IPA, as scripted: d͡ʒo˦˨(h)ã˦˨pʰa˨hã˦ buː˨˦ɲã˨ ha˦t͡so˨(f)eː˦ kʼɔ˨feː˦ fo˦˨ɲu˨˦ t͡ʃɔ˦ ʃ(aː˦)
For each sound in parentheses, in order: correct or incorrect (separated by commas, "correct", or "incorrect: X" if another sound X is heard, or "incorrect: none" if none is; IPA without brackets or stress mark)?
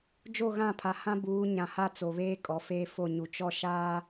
incorrect: ɣ, incorrect: β, correct